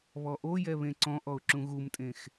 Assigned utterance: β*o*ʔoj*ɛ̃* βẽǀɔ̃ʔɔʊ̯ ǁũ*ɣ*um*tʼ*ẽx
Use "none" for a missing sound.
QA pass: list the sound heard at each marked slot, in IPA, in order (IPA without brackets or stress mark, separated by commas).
ɔ, ɛ, ɣ, tʼ